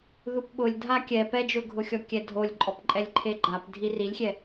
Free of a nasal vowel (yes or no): yes